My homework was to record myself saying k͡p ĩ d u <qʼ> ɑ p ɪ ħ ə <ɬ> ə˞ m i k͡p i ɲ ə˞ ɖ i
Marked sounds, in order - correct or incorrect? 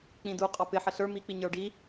correct, correct

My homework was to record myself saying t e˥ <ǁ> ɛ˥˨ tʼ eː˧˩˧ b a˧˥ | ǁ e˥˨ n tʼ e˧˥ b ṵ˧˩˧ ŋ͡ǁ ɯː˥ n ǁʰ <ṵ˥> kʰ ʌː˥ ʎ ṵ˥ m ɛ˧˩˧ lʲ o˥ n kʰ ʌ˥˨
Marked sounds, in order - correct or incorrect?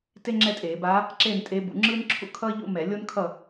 incorrect: ŋ͡ǁ, correct

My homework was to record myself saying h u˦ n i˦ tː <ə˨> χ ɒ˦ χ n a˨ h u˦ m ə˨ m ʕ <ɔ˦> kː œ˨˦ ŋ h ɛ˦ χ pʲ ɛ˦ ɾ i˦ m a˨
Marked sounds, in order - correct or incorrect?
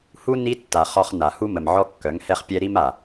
incorrect: a˨, correct

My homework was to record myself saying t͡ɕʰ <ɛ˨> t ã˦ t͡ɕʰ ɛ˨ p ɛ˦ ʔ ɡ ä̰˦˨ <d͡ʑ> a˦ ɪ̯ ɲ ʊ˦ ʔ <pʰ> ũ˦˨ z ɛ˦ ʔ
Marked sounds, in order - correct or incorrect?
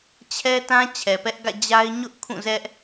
incorrect: ɛ˦, correct, incorrect: kʰ

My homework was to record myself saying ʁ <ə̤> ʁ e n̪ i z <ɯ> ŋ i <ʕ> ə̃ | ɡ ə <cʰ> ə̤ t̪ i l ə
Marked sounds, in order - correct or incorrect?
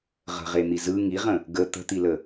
correct, correct, incorrect: ʁ, incorrect: t̪

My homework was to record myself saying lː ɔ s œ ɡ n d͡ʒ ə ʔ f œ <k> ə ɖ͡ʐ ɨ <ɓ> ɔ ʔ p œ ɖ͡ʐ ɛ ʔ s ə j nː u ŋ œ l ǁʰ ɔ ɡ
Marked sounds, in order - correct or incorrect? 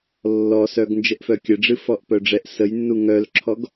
incorrect: kʲ, incorrect: f

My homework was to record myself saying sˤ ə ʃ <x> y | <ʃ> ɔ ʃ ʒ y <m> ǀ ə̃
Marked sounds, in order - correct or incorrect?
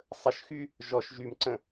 correct, incorrect: ʒ, correct

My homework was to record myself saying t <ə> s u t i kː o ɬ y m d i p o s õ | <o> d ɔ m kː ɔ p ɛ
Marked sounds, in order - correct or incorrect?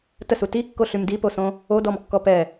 correct, correct

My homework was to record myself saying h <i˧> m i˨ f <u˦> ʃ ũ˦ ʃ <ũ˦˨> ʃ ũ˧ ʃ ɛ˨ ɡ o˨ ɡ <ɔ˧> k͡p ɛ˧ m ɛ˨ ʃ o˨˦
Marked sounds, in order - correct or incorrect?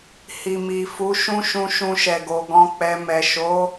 incorrect: i˨, incorrect: u˨˦, incorrect: ũ˧, incorrect: ɔ̃˧

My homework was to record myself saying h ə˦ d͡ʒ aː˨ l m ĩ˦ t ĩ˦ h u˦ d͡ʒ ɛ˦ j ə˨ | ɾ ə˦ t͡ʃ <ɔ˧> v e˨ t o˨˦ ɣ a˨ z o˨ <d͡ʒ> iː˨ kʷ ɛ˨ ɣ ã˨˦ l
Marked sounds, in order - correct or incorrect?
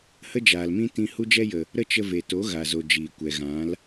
incorrect: ə˧, correct

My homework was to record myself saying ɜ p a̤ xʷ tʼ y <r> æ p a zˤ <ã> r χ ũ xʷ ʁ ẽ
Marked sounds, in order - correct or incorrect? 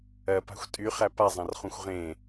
incorrect: χ, correct

